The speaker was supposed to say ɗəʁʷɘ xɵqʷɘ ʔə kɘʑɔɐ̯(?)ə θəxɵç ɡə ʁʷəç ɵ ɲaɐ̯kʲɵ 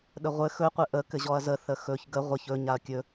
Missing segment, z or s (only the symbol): z